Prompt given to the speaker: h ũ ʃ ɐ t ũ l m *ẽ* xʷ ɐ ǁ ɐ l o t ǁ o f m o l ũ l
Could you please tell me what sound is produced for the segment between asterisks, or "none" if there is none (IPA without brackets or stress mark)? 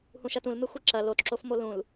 e